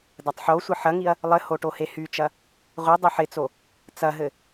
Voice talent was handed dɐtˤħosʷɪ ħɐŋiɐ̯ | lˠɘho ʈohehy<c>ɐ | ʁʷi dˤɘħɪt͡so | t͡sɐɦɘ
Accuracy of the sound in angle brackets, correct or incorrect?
incorrect